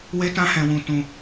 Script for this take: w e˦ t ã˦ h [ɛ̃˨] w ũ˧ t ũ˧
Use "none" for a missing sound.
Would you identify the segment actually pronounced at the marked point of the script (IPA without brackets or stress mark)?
ɛ̃˧